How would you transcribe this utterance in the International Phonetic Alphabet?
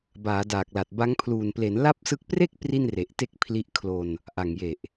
b aː˩˦ d aː˨˩ k̚ l a˨˩ t̚ b a˦˥ ŋ pʰ l uː˨˩ n p l e˩˦ n l a˥˩ p̚ s ɯ˦˥ k̚ p r e˥˩ k̚ p r i˥˩ n r e˨˩ ʔ t e˥˩ k̚ pʰ l i˦˥ ʔ kʰ l o˧ n | ʔ a˨˩ ŋ j e˨˩ ʔ

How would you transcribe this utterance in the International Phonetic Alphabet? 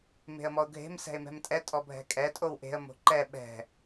m e̤ ə̯ m ɔ ʊ̯ ɡʱ e̤ m s ɛ̤ ɪ̯ m ɛ̤ m tʼ ɛ tʼ ɔ bʱ ɛ̤ kʼ ɛ tʼ o w ʔ e̤ ə̯ m o̤ ǃ ɛ ɓ ɛ̤

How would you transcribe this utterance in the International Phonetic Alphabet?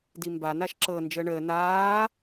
d i m b a n a ʃ ǁ ɤ n d͡ʒ əː ɳ əː n aː

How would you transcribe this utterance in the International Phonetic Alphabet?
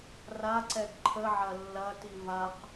r a ǀ ɛ ɡ ǃʰ ə ʕ ɐ lː ɐ t i v a q

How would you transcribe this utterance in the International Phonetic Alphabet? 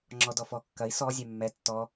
ŋ͡ǁ ɔ d ɔ f ɔ kː ɐ i̯ s ɔ zʲ ɛ mː ɛ tː ɔ

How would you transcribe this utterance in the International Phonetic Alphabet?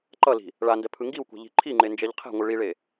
ǃ ʌ l i̤ | ɭ a n d ɛ pʰ ɯ ŋ ɡ i w kʷ ɛ̤ ʎ i̤ ǃʰ i ŋ͡ǃ e n d͡ʒ ɛ ʎ qʰ ɛ̤ ŋʷ ɯ ɭ i ɭ e

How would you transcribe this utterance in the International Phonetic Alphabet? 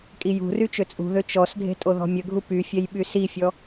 kʼ i j ṳ r y t͡ʃ ø t͡sʼ ṳ ð ø t͡ʃ ɔ s dʱ e̤ tʼ o ð ɔ̤ mʲ ə ɡʱ u p y fʲ ɛ j ɓ y s i fʲ ɔ

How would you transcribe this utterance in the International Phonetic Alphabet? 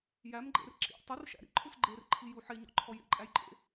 j æ m ɡ͡ǃ ḛ r ǁ ḭ tˤ ɘ r ʃ æ̰ ɾ ḭ ǃʰ u s ɡ͡ǃ e r ǃʰ i j u ħ e ɲ ɔ̰ ǃʰ ɔ j ḛ ǃʼ æ j ǃʼ ḛ

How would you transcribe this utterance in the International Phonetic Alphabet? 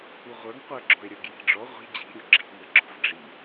u ʁʷ ə˞ ŋ qʷ ə˞ ɡ͡ǁ ɔ̤ e̯ ɾʲ ə˞ ɡ j i̤ ɖ͡ʐ ɔ ʁʷ i̤ d͡ʑ i̤ ɾʲ u ɡ͡ǁ i̤ ŋ ɤ ɡ͡ǁ ɔ̤ v ɖ͡ʐ i

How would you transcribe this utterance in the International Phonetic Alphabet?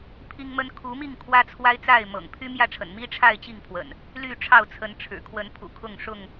pʰ i˦ ŋ m ə˦ n kʰ u˨˦ m i˥˨ ŋ kʰ w ä˦ t͡sʰ w a˦ ɪ̯ t͡s a˥˨ ɪ̯ m ɤ̰˨˩ ŋ pʰ y˦ m j ä˥˨ ʈ͡ʂʰ ə̰˨˩ n m i˦ ʈ͡ʂʰ a˥˨ ɪ̯ t͡ɕ i˥˨ ŋ pʰ w ə̰˨˩ n | l y˥˨ ʈ͡ʂʰ ɑ˥˨ ʊ̯ t͡sʰ ə˨˦ n ʈ͡ʂʰ ɻ̩˨˩ kʰ w ə˨˦ n pʰ ṵ˨˩ kʰ ʊ˥˨ ŋ ʂ ʊ˥˨ ŋ

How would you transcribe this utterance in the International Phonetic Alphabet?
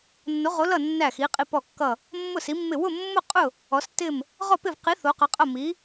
nː o˨˦ ʁ o˨˦ l ʌ˦˨ nː æ˦˨ x i˨˦ qʼ i˦˨ p ɔ˦˨ kː ʌ˦˨ | mː ʊ˦˨ s i˨˦ mː ɪ˦˨ w ʊ˦˨ mː ʊ˦˨ qʼ ʊ˦˨ | ɔ˨˦ s t ɪ˦˨ m | ʁ ɔ˦˨ p ɪ˦˨ v q i˨˦ θ o˨˦ q ʌ˨˦ qʼ ʌ˦˨ m i˨˦

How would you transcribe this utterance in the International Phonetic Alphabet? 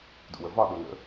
d ṵ w ə v ɒ ɗ o n ə̰

